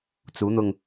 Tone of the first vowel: rising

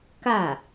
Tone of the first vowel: falling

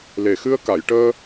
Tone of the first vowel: low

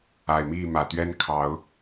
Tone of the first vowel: low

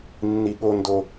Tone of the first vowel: high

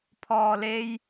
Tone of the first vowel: low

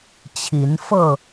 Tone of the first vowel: rising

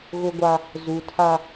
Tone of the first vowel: high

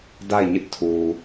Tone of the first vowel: falling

